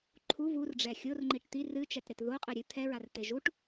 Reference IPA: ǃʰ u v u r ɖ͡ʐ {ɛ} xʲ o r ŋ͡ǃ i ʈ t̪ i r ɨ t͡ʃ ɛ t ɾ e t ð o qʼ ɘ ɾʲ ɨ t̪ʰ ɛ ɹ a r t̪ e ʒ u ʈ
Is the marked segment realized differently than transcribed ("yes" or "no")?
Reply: no